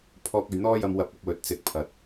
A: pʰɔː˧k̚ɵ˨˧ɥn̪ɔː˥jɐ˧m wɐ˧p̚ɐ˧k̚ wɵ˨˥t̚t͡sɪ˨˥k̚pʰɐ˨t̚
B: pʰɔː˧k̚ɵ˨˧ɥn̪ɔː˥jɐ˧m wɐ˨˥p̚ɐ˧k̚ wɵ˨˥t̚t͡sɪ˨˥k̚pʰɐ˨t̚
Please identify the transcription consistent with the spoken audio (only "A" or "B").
A